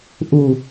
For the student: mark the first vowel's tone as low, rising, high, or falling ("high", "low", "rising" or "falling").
low